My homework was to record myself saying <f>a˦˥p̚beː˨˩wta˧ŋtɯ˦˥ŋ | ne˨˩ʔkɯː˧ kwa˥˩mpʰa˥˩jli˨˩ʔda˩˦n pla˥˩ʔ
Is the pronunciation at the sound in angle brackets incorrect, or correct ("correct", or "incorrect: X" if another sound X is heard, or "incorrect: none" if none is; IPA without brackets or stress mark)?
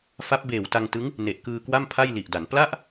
correct